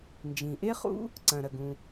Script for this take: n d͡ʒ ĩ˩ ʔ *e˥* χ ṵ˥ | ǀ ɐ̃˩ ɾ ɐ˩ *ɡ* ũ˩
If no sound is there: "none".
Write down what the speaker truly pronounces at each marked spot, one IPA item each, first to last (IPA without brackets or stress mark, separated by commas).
e˥, ɡ